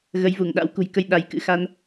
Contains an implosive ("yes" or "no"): yes